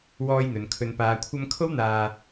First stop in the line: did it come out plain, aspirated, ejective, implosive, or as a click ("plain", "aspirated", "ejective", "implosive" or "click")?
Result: aspirated